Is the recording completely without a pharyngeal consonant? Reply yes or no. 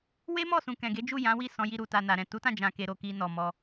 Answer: yes